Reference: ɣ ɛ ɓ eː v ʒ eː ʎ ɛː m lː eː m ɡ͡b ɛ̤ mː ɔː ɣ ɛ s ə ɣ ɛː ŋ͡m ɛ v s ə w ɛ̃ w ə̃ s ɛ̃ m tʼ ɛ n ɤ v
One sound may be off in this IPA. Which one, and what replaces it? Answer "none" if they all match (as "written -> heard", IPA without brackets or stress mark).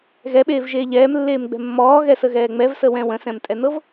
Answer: none